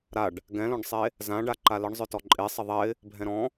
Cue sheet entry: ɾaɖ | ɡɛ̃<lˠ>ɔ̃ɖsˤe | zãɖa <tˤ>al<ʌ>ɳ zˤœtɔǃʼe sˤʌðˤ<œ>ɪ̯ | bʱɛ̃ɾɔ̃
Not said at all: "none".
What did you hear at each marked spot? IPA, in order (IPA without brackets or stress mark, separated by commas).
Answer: l, ǃ, ə, ɛ